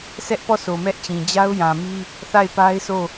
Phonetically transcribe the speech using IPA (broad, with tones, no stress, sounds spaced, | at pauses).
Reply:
sʰ ɛ˦ ʔ p ɔ˦˨ sʰ o˨ m ɛ˦ ʔ t͡ɕ ĩ˨ d͡ʑ a˦ ʊ̯ j ã˨ m i˦ | θ a˦˨ ɪ̯ p a˦ ɪ̯ sʰ o˦˨